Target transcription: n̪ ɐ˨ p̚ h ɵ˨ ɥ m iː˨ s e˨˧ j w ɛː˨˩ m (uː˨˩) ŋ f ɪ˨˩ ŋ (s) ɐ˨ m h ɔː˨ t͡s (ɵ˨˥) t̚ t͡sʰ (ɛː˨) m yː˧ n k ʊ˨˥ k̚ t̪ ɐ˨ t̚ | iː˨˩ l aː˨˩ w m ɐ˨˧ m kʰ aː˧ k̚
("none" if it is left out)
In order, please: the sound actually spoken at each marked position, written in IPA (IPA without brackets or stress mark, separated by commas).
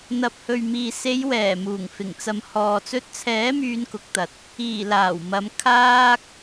uː˨˩, t͡s, ɵ˧, ɛː˨˥